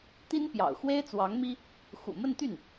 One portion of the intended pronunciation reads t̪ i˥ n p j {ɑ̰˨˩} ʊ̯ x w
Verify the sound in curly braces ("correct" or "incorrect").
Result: correct